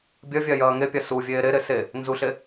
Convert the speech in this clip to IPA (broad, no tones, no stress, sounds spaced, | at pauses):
bʲ ɐ vʲ a j ɐː ŋ e pʲ a s u vʲ eː ɾ e ɾ e s e | n z u ɬ e